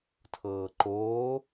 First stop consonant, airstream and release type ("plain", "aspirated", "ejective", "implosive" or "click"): aspirated